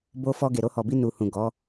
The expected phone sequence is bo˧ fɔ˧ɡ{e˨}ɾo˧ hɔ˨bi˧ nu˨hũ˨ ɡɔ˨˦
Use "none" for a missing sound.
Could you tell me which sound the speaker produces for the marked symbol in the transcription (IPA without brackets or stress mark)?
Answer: e˨